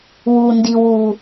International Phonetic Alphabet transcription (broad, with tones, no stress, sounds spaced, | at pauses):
w u˨ n d i˨ w u˨